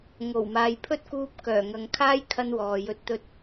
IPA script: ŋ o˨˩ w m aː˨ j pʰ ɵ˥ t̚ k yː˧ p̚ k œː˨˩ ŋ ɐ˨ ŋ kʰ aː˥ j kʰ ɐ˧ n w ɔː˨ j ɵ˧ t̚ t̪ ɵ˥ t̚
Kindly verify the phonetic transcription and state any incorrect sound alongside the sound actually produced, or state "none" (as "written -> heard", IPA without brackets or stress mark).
yː˧ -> uː˧